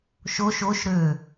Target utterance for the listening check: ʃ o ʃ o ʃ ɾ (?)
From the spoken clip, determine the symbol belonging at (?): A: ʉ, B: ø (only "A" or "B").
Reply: B